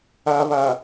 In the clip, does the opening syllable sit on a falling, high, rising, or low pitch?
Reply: low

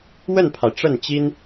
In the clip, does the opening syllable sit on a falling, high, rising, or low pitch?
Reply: falling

